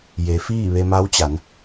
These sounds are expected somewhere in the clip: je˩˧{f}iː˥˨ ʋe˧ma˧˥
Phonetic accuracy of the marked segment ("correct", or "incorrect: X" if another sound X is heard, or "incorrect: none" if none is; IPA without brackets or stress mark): correct